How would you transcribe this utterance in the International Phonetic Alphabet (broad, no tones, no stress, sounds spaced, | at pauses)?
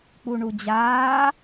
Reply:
k͡p u ɳ u d͡ʑ aː